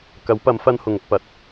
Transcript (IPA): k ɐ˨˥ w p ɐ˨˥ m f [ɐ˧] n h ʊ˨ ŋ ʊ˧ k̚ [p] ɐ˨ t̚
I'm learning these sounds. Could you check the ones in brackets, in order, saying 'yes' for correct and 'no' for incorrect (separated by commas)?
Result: no, yes